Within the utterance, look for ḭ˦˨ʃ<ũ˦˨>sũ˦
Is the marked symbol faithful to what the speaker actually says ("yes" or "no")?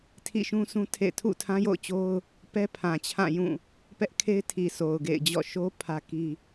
no